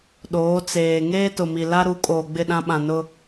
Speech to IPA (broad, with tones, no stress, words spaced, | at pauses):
ɗoː˨˦t͡seː˨ ŋeː˦tʊ˨mi˨la˦ ɾu˨˦ kʼoː˨ɡ͡bɪ˦˨ɗã˦ ɓã˨nʊ˦